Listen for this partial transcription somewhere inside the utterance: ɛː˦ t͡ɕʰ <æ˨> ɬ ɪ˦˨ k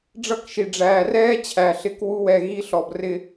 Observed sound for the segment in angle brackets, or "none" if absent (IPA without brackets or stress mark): æ˨